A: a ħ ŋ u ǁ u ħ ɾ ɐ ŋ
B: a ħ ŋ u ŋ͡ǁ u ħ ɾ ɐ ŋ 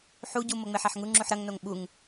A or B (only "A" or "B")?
B